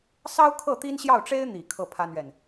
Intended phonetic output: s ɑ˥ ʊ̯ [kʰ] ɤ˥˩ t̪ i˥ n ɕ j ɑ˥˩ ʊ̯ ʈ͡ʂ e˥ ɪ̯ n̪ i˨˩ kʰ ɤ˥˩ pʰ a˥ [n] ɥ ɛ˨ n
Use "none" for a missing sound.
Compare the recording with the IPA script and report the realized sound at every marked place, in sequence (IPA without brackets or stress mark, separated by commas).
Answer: kʰ, n